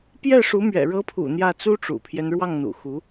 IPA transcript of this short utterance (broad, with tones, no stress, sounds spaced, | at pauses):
p j ɛ˥˩ ʂ u˧˥ m ɥ ɛ̰˨˩ ɻ ɤ˧˥ pʰ ṵ˨˩ n̪ j ä˥˩ t͡s u˥ ʈ͡ʂ ṵ˨˩ pʰ j ɛ˦ n ɻ w ɑ˥˩ ŋ n̪ ṵ˨˩ x u˧˥